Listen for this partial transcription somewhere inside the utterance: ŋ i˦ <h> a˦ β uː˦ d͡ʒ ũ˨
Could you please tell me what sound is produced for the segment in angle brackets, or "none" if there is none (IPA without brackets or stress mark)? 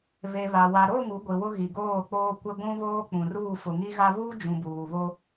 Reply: ɣ